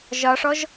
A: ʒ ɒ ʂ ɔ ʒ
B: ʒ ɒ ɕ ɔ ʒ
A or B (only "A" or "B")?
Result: A